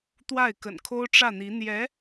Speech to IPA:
t̪ w a˥˩ ɪ̯ k ə̰˨˩ n kʰ o˥ ʊ̯ ʈ͡ʂ ä˥˩ n̪ i˧˥ n̪ j ɛ˧˥

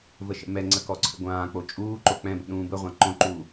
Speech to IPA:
v ə ʃ ə̰ m ɛ ŋ͡ǀ ə k ɔ ǀʰ ə̰ ɡʷ ãː k͡p o t͡ʃʼ uː ǃ o k͡p ɛ̃ b ə̰ ɗ ũː b ə ʁʷ ã ǃ õ ǃ uː

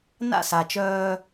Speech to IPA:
n a̰˥˩ s a˩ t͡ʃ œː˧

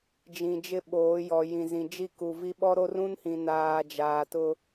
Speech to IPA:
d͡ʒ ĩ˨ d͡ʒ ɪ˦ ɓ oː˨˦ j ɔ˨ j ĩ˨ z ĩ˨ d͡ʒ i˦˨ k u˨ v i˦ ɓ ɔ˦ ɾ o˦ r ũ˦ n h ĩ˨ n aː˨ d͡ʒ aː˨ t ʊ˦

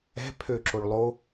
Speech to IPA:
ɛ̤ pʰ ø ǁ o ɭ lˠ o

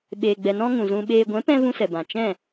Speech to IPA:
ɓ eː˨ ɡ͡b ɛ˨ n ɔ̃˧ ŋ ũ˨ z ũ˧ ɓ eː˧ ɡʷ ɛ̃˨˦ p ɛ̃˧ v ũ˦ s ɛ˨ b ã˨ t͡ʃ ɛ̃˦˨

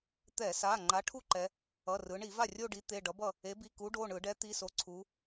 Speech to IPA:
t̪ ɛ˧˩˧ s a˩˧˩ ŋ͡ǃ a˨˥ ʈʰ u˥˧ ǃ ɛ˩˧ | ʌ˩˧˩ r ɯ˩˧ ɳ i˧˩˧ v a˥˩ rʲ o˥˧ ɖ i˨˥ t̪ e˩˧˩ ɖ ʌ˨˥ b ʌ˥˩ | e˨˥ b i˩˧˩ k u˨˥ ɖ o˩˧˩ ɳ ɯ˧˩˧ ɖ ɛ˨˥ t̪ i˩˧˩ s o˨˥ ǀʰ u˩˧

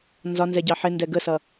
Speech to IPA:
n z ɒ n z ɛ ɟ ɑ ħ ɪ n d ɛ ɡ ə s ʌ

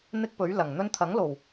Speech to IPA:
n̪ ɪ˥ k̚ p ɵ˨˥ ɥ l ɐ˨˩ ŋ n̪ ɵ˥ n t̪ʰ ɐ˨˥ ŋ l o˨˩ w

